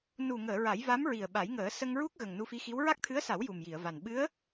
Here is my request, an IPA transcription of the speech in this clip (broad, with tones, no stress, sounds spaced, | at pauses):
n u˨˩ ŋ əː˨˩˨ ɹ a˨˩˦ j v a˧˥ m ɹ i˨˩ ə̯ ɓ a˨˩˦ j ŋ əː˨˩˦ s ə˧ ŋ ɹ u˦˥ k̚ ɣ ə˨˩ ŋ n u˧ f i˧˥ x i˧˥ w ɹ a˦˥ k̚ t̪ʰ ɨ˧˥ ə̯ s a˨˩˦ w j u˨˩ m j i˨˩˨ ə̯ v a˨˩ n ɓ ɨ˧˥ ə̯